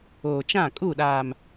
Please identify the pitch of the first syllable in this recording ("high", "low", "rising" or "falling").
low